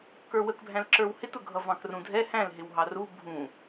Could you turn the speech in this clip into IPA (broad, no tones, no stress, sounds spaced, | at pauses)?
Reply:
k ə˞ w ə k bʱ æ̃ l ǁ ə˞ w h ɪ t ʊ ɡʱ ʌ v ɑ̃ k r ũ dʱ ɛ h æ̃ l ɦ ɪ w ɦ ɑ r u bʱ ũ